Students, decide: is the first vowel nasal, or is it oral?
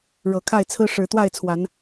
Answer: oral